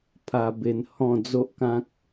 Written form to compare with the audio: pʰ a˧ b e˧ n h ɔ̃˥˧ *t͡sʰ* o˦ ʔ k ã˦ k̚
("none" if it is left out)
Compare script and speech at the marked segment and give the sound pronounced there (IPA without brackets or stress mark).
d͡z